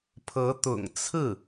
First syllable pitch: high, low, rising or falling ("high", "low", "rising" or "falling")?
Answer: rising